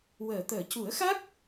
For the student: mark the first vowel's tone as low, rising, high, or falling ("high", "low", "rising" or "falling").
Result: low